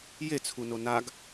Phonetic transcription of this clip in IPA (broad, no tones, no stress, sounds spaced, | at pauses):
j e t͡sʰ u n o n a ɡ